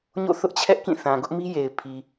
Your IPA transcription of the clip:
ɲ o̰˦˨ θ ʊ˦ ʔ t͡ɕʰ ɛ˦ ʔ k ĩ˦˨ θ ã˨ ɡ ʊ˦ ʔ m i˦ j e˨ ɪ̯ pʰ i˨

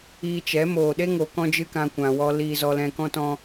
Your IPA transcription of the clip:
iː˧ t͡ʃ ɛ˨˦ m oː˨ ɗ e˦ ŋ oː˧ k ɔ̃˦ d͡ʒ ɨ˦ k ã˧ kʷ ã˨ w ɔ˧ l iː˧ z ɔ˧ l ɛ̃˧ k ɔ̃˦ t ɔ̃˦

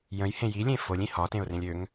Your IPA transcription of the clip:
j ə̃ j h ẽ j i lʲ ẽ f o lʲ ĩ h ɒ t ẽ ʊ̯ r ẽ lʲ ø ŋ

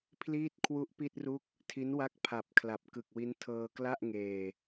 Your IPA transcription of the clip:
pʰ l iː˥˩ t̚ kʰ w u˦˥ ʔ p i˥˩ t̚ r u˥˩ k̚ | tʰ i˦˥ n w a˥˩ k̚ pʰ a˨˩ p̚ kʰ l a˨˩ p̚ k ɯ˨˩ k̚ w i˦˥ n tʰ ɤː˧ k l a˥˩ ʔ ŋ eː˧

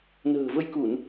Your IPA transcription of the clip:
n ə̤ː˨˩ v ə˧ j k u˧˩˨ n

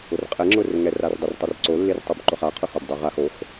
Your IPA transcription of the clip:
ʊ r qʼ ɛ ŋ͡ǁ ʊ r ŋ ɛ r a r dˤ ɪ r tˤ ə r ǀ o lː ɪ r tˤ u b ǃ ʊ χ a qʰ ʊ x o b dˤ u ʁ a x o x

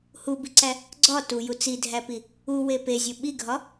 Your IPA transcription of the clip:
h u b i ǀ æ | ɡ͡ǀ ɒ t u j u t͡s i dʱ æ p i | u w e p e zʲ o ɓ i ɡʱ ɒ

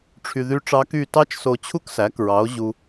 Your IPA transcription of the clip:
ʈ͡ʂʰ y˧ ð y˦˥ ʈ͡ʂ ɑ˦˥ k y˥˨ t ɑ˦˥ t͡ʃ s o˧ t͡ɕʰ u˦˥ k s æ˩˥ k ɹ ɑ˩˥ o̯ ʑ u˧

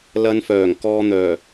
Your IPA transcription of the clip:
l ɐ˧ n f œː˨˩ ŋ k ɔː˧ n̪ œː˨˩

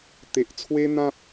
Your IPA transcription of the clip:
t̪ e˦ ʔ t͡sʰ w e˦ n̪ ã˦ p̚

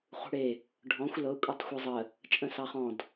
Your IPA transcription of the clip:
χ ṳ ɽ e | ɖʱ ɔ̃ xʷ l ɤ kʷʼ ɛ tˤ xʷ ɤ zˤ ə | t͡ʃʼ ə̃ s ɑ χ ɔ̃ d

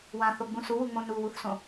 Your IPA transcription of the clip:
w ã θ o ɡ͡b ũ s u w u ŋ͡m õ n u w u θ s õ

